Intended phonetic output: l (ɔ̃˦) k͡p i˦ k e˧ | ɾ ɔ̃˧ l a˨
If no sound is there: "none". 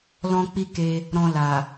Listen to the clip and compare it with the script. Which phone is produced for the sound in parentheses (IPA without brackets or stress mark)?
ɔ̃˦